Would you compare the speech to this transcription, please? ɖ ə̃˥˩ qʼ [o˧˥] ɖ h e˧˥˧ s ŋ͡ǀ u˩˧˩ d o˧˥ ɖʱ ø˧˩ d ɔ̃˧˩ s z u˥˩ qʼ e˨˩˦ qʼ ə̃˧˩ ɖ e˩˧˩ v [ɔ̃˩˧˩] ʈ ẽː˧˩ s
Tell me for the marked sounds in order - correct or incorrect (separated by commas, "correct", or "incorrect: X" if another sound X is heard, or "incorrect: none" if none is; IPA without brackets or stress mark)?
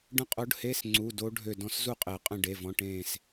correct, correct